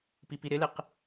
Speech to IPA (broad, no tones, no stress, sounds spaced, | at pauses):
p i p i ɾ ɪ l ɪ q